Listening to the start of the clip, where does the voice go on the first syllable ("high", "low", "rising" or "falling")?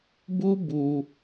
high